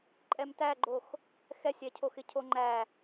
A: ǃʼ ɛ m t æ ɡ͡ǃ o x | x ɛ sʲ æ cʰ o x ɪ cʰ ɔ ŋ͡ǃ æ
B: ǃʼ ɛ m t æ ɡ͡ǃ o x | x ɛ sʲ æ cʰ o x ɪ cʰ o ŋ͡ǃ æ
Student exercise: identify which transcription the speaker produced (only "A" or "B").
B